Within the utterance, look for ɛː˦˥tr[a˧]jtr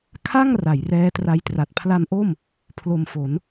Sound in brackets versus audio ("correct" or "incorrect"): correct